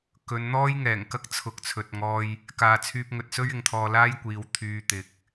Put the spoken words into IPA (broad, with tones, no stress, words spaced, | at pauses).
kɵ˨˧nn̪ɔː˥jŋɛː˨˩ŋkɐ˥k̚ t͡sʰʊ˨k̚t͡sʰɵ˨t̚ŋɔː˧j | kaː˨t͡sʰyː˧p̚ŋɵ˨t̚ sɵ˥ɥɪ˨ŋt̪ʰɔː˧ laː˥jkʷiː˨˧w t̪ʰyː˧t̪ɪ˨k̚